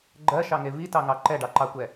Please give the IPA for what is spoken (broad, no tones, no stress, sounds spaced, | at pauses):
ɡ͡ǃ ɜ ʃ ɑ ŋ e v i t ɑ ŋ ɑ ǃ ɛ ɖ ɑ ǃ ɑ kʷ ɛ